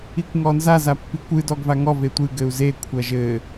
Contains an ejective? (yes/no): no